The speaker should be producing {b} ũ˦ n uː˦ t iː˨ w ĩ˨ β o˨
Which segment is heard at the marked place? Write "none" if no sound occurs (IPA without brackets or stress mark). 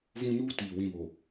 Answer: v